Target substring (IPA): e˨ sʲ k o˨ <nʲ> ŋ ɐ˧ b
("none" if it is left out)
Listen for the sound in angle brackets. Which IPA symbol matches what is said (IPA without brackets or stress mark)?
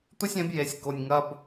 nʲ